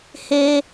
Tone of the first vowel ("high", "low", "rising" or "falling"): high